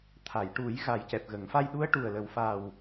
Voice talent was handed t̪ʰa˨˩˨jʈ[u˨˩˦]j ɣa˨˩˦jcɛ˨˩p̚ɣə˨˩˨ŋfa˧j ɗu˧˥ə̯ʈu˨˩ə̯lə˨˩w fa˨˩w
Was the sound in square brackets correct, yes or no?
yes